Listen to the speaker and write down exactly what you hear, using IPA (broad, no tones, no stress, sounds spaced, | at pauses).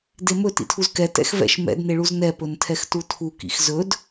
d e m ɵ t ḭ tʰ u z k ɛ t ɛ̰ x v ɛ̰ ʃ m ɛ̰ d n e ɭ u z n ɛ p ɵ n tʰ ɛ x t u tʰ u k ḭ x z ɵ d